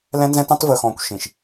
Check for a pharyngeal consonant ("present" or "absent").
absent